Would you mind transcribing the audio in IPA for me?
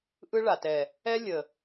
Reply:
ʔ ɯ˦ ɭ a˨ t ɛ˨ | ɛ˦ lʲ ə˨

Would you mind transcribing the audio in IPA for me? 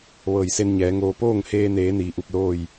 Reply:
ʋ ɤː˧˩ j s e˧ n ɲ ɛː˩˧ ŋ oː˧ p oː˥˨ ŋ h eː˧ n eː˩˧ n iː˩˧ ʔ u˧˩ p̚ l oː˥˨ j

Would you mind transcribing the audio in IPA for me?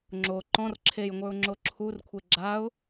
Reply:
ŋ͡ǁ o ǃ ɔ̃ r ǁʰ e j ŋʷ ə˞ ʊ̯ ŋ͡ǁ o ǁʰ u r kʷʰ e ɡ͡ǁ a ʊ̯

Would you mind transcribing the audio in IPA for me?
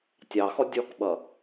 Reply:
tʲ ɑ x ɔ dʲ ɔ k ɓ ʌ

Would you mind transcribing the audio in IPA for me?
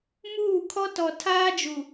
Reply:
m uː˦˨ kʰ ɔ˦ t ɔ˨ tʰ aː˦ d͡ʒ u˨

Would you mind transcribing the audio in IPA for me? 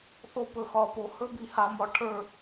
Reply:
θ o˧ p ɵ˨ x ɒ˨ p o˨ h ɵ˦ b i˨ h a˧ m ɒ˧ ʈʰ ə˞˦˨

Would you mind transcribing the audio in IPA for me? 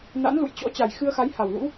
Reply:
n a̰˧˥ n l ṵ˧˨ j t͡ɕ ɔ̰˧˥ t͡ɕ a˨˩ j x ɨ˧ ə̯ x a˨˦ j h a˨˩ w l ṵ˧˥

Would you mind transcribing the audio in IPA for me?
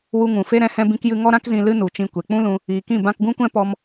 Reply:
w u˧ ŋ ũ˨ f e˦ ɾ ɛ̃˦ h ɛ̃˦ b ĩ˦ k j ɨ˦ ŋ ɔ˦ ɾ ã˦ k z ĩ˧ l ɨ˦ n u˨ t͡ʃ ĩ˧ kʷ e˨ k͡p ũ˦ l ũ˧ | iː˨ k ĩ˦˨ b ã˧ k ɡ ũ˦ kʷ ɛ̃˦ p ɔ˦ m

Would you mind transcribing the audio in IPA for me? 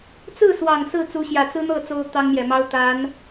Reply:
t͡s ɹ̩˥˩ s w ɑ˨˩ ŋ s ɹ̩˥˩ t͡s u˧˥ ɕ j ä˨˩ t͡s ɹ̩˥ n̪ ɤ˥˩ t͡s o˥ ʊ̯ t̪ ɑ˥ ŋ m j ɛ˨˩ m ɑ˥ ʊ̯ t̪ a˧˥ n

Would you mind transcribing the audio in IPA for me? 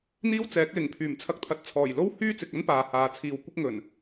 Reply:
n̪ iː˥ w t͡s ɛː˨˥ k̚ l ɪ˨˩ ŋ pʰ yː˨˩ m t͡sʰ ɐ˧ k̚ t̪ʰ ɐ˨ t̚ t͡sʰ ɔː˨˩ j l o˥ w h yː˥ t͡s ɪ˨ k̚ ɐ˥ n p aː˨ h aː˨ t͡sʰ iː˨ w kʷ ɪ˥ k̚ ŋ ɵ˨˩ n

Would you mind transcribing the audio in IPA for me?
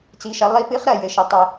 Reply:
t͡s i˧˥ ʃ ɐ˧˥ lˠ i˧˥ p ɨ˧˥ χ ɾ ɐ˦˨ j ɘ˧˥ ʃ ɐ˧˥ tˤ ɘ˦˨

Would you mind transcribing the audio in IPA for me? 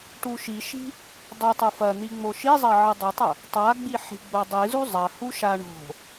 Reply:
ʈ u ʃ i ʃ i̤ | dˤ ɨ tˤ u f ɐ n̪ i ŋ͡m o ʃ i zˤ ɐ ʕ ɨ dˤ u tˤ ɐ | tˤ a ɡ͡b i ħ i̤ ɡ͡b o dˤ ɨ z u zˤ ɐ h u ʃ a ɳ o̤

